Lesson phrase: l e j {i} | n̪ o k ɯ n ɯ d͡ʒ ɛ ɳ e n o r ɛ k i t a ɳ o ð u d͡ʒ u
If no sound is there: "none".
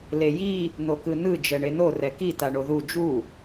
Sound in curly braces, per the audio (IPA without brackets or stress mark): i